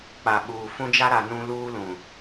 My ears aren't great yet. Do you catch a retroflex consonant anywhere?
no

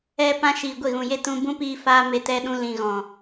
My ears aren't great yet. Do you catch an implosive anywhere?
yes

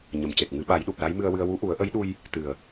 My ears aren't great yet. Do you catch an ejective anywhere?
no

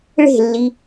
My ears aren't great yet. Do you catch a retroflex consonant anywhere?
yes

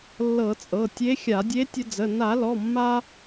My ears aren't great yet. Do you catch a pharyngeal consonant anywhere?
no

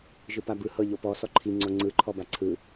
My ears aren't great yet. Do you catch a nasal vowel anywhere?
no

